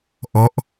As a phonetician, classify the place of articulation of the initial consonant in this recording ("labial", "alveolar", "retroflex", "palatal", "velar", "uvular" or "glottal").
glottal